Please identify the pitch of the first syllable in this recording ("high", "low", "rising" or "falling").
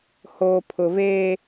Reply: low